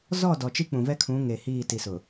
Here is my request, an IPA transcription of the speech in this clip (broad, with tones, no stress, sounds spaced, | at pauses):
z ɔ˦˨ d ɔ˨ t͡ʃ i˦ k͡p ũ˨ v ɛ˦ kʰ ũ˨˦ ŋ eː˨ h iː˦˨ t i˨ s ʊ˨